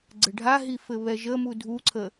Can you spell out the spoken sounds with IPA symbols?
ɡ͡ǀ ɘ ɖʱ a ɦ i f ɘ β ɛ ʒ ə m u dʱ u ǀʰ ə

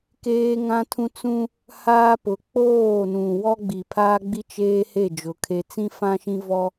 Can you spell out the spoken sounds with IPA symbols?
k eː˦ ŋ ã˦ tʰ ũ˦ t͡s ũ˦ | h aː˦ p ʊ˨˦ k͡p oː˦˨ n ũ˨ w ɔ˦ ɡ͡b i˨ pʰ aː˦ ɡ͡b i˦ t͡ʃ eː˦ h e˦˨ d͡ʒ ʊ˨˦ kʰ e˦ t͡s ĩ˦ f ã˦ ʃ ĩ˦ v ɔ˦

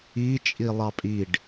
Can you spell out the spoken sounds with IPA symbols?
i t͡ʃʼ i lˠ ɑ pʼ i ɖ

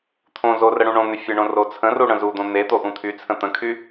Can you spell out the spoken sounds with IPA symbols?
t̪ʰ õ z o r ə ɽ ũ ɳ õ n̪ ʏ fʲ ə ɳ õ r o t͡sʰ ə̃ r u ɽ ə̃ z u d̪ õ n̪ e t̪ o ʔ ũ t̪ʰ y t͡sʰ ə̃ t̪ ə̃ kʰ y

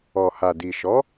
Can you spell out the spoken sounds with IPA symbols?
ɔ˨ h a˨ d i˨ ʃ ɔ˨˦

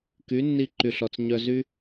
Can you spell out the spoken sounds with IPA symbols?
k y˨˦ nː i˧ ǃ y˨ ɬ ɔ˨ t͡s ɲ œ˧ z y˦

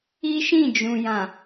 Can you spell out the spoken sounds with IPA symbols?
i˦ ʃ ĩ˦˨ d͡ʒ ũ˨ j ã˨

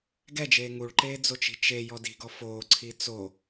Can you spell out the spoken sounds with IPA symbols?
ɡ ɛ d͡ʒ eː ŋ u ɭ ǃ eː d͡z o t͡ʃ i̤ t͡ʃ e j ɔ d i̤ ɡ ɔ f oː ǀʰ i t͡s o

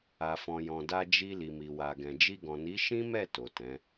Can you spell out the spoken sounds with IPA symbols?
a˨ f ɔ̃˨ j ɔ̃˨ d a˧ d͡ʒ i˧ l i˨ m i˨ w a˨ ɡ ɛ̃˨ d͡ʒ i˧ ɡ ɔ̃˨ n i˨˦ ʃ ĩ˦ m ɛ˦˨ t o˨ t ɛ̃˨˦

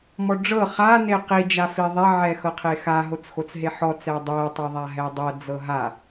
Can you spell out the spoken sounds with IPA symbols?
m ɔ ɖ͡ʐ ɤ χ a n e q i d͡ʒ a f i ðˤ ɛ ʕ ɛ x ɤ qʰ e x a ɦ o t͡s x o t͡s ɦ e ħ ɔ t͡s ɛ dˤ ɛ tˤ ɛ ðˤ a ɦ ɛ dˤ ɤ d͡z ɤ ɦ a

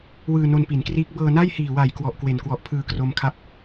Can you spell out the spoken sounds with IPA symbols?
w ɯː˧ n o˧ n p i˩˦ n k r iː˦˥ k̚ b ɤː˧ n a˥˩ j h iː˨˩ w a˨˩ j k w ɔ˨˩ ʔ k w e˨˩ n k w ɔ˨˩ ʔ pʰ ɯː˧ k r o˦˥ m kʰ a˥˩ p̚

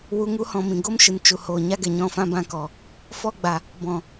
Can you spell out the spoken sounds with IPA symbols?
w u˧ ŋ u˦ h ɔ̃˧ m ĩ˨ ɡ o˦ m ʃ ɨ˨ n t͡ʃ u˨ h oː˨ ɲ a˦ ɡ ɛ˨ ɲ ɔ̃˦˨ f ã˦ b ã˦ k ɔ˨ | f ɔ˦ ɡ͡b a˨ | b ɔ̃˨

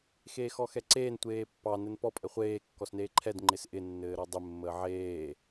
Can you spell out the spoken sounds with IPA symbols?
x eː x ɔ x ɛ ǀ eː n tʷ eː pː ɑ n ɘ n p ɔ pʼ ɘ χʷ eː kː ɔ s n eː ǃʰ ɛ d ŋ͡ǃ ɪ s ʔ ɪ nː ɘː ɾ ɔ dˤ ɪ mː əː ʕ eː

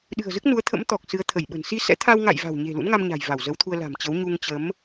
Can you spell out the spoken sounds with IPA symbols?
ɗ ɨ̤˨˩ ə̯ z ɨ˦˥ k̚ n u˨˦ ə̯ t̪ʰ ə̰˧˥ m t̪ ɔ˨˩ k̚ s ɨ˨˦ ə̯ t̪ʰ ə˧˩ j ɓ ə̤˨˩ n s i˧ s ɛ̰˧˥ t̪ʰ a˧ w ŋ a̰˧˨ j v a̤˨˩ w ɲ e̤˨˩ l ṵ˧˥ n ŋ a˧ m ɲ a̤˨˩ j v a˧˩ w z ə˨˦ w t̪ʰ u˧ ə̯ l a̤˨˩ m t͡ɕ ə˨˦ w ɲ u˧ ŋ t͡ɕ ə˨˦ m

